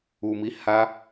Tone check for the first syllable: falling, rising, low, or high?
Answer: low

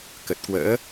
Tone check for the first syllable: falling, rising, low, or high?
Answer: low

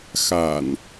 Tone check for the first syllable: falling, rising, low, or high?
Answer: low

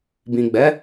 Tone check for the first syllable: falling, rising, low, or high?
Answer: low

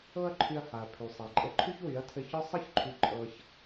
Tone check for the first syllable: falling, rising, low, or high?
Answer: high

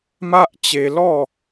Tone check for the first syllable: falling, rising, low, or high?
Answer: high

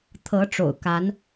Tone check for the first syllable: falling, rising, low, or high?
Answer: rising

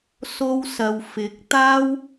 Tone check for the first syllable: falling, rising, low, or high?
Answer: high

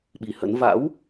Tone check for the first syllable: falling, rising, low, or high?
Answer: low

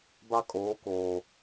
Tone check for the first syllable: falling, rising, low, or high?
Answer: high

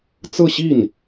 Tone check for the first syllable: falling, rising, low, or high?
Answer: falling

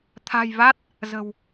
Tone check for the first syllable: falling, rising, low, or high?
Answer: low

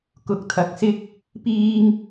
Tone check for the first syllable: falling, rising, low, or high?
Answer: rising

